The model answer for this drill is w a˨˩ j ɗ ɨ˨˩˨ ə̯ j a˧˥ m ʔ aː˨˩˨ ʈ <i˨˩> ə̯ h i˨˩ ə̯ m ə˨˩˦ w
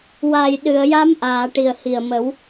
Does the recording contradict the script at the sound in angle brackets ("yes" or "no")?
no